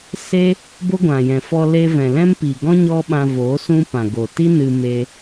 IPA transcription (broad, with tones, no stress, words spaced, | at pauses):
se˦ | bo˦ɡʷã˨jɛ̃˨fɔ˧ le˧vɛ̃˨lɛ̃˦m pi˨ɡɔ̃˦ ɲɔ˦ɓã˧vo˨˦ sũ˦ pã˨ɡo˨ti˦ nɨ˧me˧